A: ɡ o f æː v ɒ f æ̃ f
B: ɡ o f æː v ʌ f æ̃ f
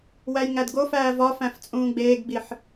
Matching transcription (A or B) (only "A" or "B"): A